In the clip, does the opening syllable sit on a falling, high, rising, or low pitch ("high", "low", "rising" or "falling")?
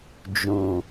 low